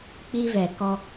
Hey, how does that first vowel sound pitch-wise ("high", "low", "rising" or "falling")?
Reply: high